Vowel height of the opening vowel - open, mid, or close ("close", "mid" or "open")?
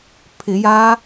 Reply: close